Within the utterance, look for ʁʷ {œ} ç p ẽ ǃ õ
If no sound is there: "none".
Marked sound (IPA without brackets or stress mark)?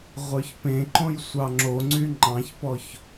œ